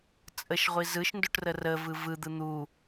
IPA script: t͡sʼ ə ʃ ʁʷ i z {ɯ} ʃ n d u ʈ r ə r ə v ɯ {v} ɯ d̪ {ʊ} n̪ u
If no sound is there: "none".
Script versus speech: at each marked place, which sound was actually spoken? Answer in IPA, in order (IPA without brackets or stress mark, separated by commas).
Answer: ɯ, v, ɯ